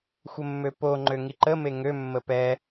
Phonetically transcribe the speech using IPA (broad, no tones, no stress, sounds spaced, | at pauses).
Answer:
xʷ ə mː ø p o ŋ͡ǃ ø ŋ i ǃ ə m e ŋ ø mː ə p ɛ